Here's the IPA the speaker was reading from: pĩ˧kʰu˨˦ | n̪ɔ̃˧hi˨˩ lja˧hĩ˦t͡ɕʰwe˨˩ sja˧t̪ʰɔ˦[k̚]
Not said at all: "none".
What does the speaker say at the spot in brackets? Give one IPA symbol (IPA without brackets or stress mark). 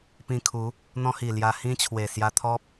p̚